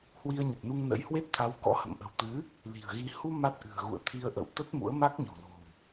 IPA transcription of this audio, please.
h w i˧ ə̯ ɲ ə˨˩ t̚ n u˧ ŋ n ə̰˧˥ j h w e˦˥ t̚ t̪ʰ a˨˦ w k ɔ̰˧˥ h ə̰˧˨ m ʔ ə̤˨˩ w t̪ ɨ˨˦ | l i̤˨˩ ə̯ ɣ i˧ h u˧ m a˦˥ t̚ ʔ ɨ̤˨˩ ə̯ ɣ ṵ˧˨ ə̯ t̪ʰ i˧ ə̯ ʔ ə̰˧˨ w t̪ ə˦˥ t̚ m ṵ˧˥ ə̯ m a˦˥ k̚ ɲ o̤˨˩ l o̤˨˩ w

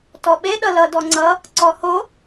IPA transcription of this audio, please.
t ɔ ɓ e ɗ ʌ l ʌ d ɔ ŋ͡ǀ ʌ | ǀ ɔ h o

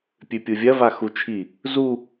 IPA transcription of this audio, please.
pʲ ʉ pʲ u vʲ ɐ v a x u t͡ʃʰ i | z u

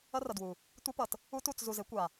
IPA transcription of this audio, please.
ʌ˦ r ʌ˨ d w u˨ | tʷ i˦ p ʌ˨ t | u˦ t u˦˨ t͡s z u˨ z e˨˦ kʷ a˨

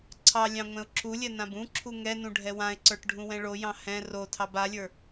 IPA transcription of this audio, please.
ǀʰ ɑ lʲ ɑ̃ ŋʷ ɛ̃ ʊ̯ ǁ u lʲ ɛ n ã b ũ ǁʰ u ŋ ɛ n ũ ɖʱ ɛ w ã ɪ̯ ǀ ə˞ ʈ ɖʱ ũ w ɛ̃ ɭ o j ɑ̃ h ɛ̃ r o tʰ ɑ b a lʲ ə˞

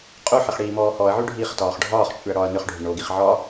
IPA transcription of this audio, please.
qʼ u ħ ɪ χ ɽ iː m ɔː h ɔ ɐ̯ ʕ y ɖʱ iː χ t ɒː χ ɖʱ ɒː χ t͡ʃʼ y ɐ̯ ɽ ɒː ɐ̯ n ʏ χ ɖʱ ʏ ɳ o ɡ i χ ʕ ɒ

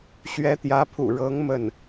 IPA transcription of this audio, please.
ɕ ɥ ɛ˧˥ t̪ j ä˧˥ pʰ ṵ˨˩ ɻ ɤ˧˥ ŋ m ə˥˩ n

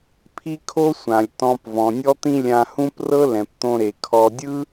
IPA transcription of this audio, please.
pʰ i˥ kʰ o˥ sʷ ã˩ lʲ t ɔ̃˧ p v ɔ̃˩ nʲ ɔ˥ t̪ ĩ˥ lʲ ã˧ h ũ˥ p r ɤ˥ l ɛ̃˩ p t̪ õ˧ ɾ e˩ kʰ ɔ˧ dʲ ɯ˥

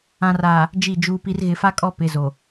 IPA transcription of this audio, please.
ã˨ r aː˨ | d͡ʒ i˦˨ d͡ʒ uː˦ p i˦ r ɣ ɪ˨ f a˦ kʼ ɔ˦˨ p ɪ˨ z o˨

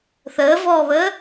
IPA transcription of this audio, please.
θ əː v ɔː β əː

